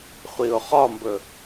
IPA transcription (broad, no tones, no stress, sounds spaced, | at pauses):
χʷ i ʊ̯ χ ɒ m b ɵ